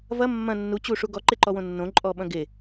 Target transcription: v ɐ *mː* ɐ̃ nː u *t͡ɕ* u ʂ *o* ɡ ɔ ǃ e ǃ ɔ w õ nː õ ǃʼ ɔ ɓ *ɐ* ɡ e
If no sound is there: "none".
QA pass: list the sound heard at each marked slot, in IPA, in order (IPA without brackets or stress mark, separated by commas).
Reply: mː, t͡ɕ, u, ɐ̃